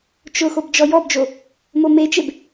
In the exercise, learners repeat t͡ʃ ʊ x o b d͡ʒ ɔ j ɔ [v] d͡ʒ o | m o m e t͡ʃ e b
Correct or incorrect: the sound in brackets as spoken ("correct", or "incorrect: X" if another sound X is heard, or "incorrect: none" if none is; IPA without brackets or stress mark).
incorrect: b